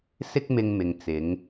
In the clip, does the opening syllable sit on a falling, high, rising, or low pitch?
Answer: high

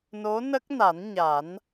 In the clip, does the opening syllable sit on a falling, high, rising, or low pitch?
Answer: rising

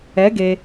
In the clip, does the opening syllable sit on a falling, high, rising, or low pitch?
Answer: rising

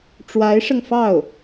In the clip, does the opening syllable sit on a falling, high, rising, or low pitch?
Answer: rising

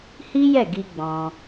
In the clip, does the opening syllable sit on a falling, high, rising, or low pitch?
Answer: high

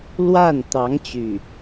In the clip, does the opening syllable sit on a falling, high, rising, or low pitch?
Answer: falling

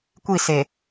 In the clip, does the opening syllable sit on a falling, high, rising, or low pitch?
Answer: falling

